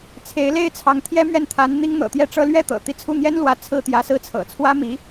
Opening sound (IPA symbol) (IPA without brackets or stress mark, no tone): t͡sʰ